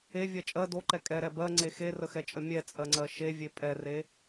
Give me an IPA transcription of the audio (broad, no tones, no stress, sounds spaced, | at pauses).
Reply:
e vʲ ɜ t͡ʃʼ ɜ d o ǃ ɛ kʼ ɛ ɾ ɛ b ɜ ŋ͡ǀ e x e r ə x ɛ t͡ʃʼ ə mʲ ɛ t͡sʼ ɜ ŋ͡ǀ ɜ ʃ e vʲ e pʼ ɛ r e